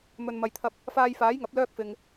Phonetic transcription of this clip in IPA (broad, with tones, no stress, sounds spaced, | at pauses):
m ɵ˨ n m ɐ˨ j t̪ʰ ɐ˧ p̚ | f aː˧ j f aː˨˥ j ŋ ɐ˨˥ p̚ l œː˥ k̚ f ɪ˨ ŋ